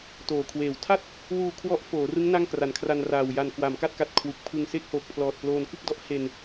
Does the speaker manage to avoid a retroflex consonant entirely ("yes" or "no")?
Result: yes